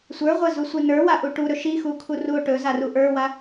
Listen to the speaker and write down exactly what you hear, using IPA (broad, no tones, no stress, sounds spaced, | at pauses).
sʷ ə˞ ʁʷ ɐ z u sʷ i n ə˞ w a ʔ u ʈ u ɾ ɵ ʃ i x u kʰ u r u o̯ ʈ ɵ z a r u ʔ ə˞ w a